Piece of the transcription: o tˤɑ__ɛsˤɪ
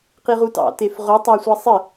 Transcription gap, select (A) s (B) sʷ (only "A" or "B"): B